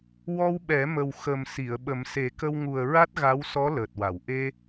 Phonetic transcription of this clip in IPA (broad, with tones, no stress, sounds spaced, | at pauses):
w ɔ˧ w ɓ ɛ˨˩˦ m ə˨˩ w x ə˨˩ m s i˨˩˨ ə̯ ɓ ə˨˩˦ m s e˨˩˦ k ə˧ w ŋ u˨˩ ə̯ ɹ a˦˥ t̚ ɣ a˧˥ w s ɔ˧˥ l əː˨˩ t̚ w a˨˩˨ w ʔ e˧